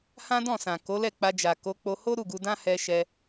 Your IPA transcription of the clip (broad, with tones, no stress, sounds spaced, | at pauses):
h ã˦ d ɔ̃˦˨ s ã˨ k o˨˦ l ɛ˦˨ k͡p a˧ d͡ʒ a˨ k o˨˦ k͡p o˧ h o˦ ɾ u˦˨ ɡ u˧ d ã˦ h ɛ˧ ʃ ɛ˧